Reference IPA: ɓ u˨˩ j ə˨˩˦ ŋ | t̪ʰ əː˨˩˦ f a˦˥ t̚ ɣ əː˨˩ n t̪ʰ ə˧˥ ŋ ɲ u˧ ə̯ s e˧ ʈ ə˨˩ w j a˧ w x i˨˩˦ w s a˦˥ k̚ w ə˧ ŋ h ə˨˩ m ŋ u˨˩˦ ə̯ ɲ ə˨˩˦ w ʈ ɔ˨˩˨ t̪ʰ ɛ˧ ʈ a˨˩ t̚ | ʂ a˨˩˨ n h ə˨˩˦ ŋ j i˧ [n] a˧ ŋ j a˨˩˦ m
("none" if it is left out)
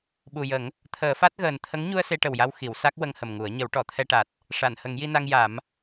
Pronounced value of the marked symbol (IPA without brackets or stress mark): n